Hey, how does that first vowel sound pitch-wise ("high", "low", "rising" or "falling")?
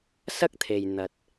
high